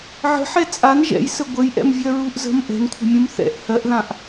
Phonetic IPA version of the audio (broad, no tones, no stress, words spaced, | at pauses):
ʕə̤ħɛ t͡sʼan ʒɛ̰jsə ɡʷəjʔɛ̰mvʲɜ ɹuʔzə̤m ʔɛ̤nkʷʰə̤mʲũm θɛ̰ʔ hɜʔðãʔ